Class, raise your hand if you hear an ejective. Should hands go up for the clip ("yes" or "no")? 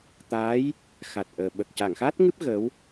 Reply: no